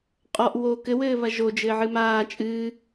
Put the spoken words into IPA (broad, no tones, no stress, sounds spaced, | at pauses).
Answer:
qʼ ɔ ʔ w oː k ɘ w ɘː β ɐ ʒ o d͡ʒ ɘː ʕ ɨ m aː t͡ʃʼ ɨː